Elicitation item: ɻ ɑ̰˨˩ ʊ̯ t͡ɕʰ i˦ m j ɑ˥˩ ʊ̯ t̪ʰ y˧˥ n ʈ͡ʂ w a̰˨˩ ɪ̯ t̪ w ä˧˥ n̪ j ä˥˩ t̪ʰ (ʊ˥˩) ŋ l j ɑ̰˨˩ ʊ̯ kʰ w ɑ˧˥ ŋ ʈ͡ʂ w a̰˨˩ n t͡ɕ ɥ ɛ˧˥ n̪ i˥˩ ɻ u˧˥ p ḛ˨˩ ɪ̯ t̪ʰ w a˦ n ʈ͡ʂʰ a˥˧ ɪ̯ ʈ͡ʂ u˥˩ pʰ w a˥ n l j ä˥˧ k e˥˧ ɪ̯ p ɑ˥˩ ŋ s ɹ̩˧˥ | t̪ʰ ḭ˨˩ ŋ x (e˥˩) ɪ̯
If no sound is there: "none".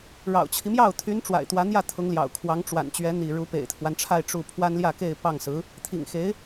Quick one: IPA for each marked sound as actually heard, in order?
ʊ˧˥, e˧˥

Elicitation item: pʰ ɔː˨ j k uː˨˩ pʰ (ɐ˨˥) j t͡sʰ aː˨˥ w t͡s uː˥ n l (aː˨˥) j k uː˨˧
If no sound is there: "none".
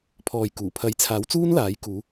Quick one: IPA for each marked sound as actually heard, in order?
ɐ˨˥, aː˨˥

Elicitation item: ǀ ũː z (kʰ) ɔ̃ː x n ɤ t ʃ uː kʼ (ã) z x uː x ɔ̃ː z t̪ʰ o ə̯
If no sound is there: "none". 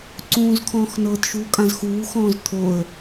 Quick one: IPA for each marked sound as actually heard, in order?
kʰ, ã

